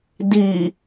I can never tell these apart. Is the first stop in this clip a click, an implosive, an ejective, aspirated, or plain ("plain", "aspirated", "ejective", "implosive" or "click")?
plain